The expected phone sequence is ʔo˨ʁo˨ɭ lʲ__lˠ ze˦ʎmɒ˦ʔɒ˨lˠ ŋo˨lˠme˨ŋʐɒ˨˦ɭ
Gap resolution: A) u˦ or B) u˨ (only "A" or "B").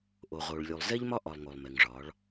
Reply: B